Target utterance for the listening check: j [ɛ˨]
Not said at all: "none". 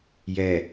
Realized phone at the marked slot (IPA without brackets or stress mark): ɛ˨